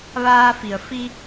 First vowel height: low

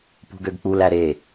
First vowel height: high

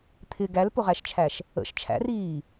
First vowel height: high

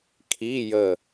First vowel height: high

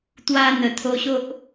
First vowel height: low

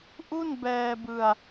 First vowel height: high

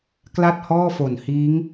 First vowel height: low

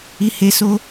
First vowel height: high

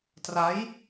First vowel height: low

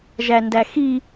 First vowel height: low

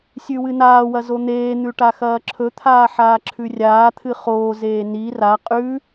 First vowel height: high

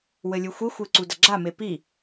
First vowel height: mid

